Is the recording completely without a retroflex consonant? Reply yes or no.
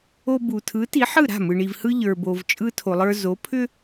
no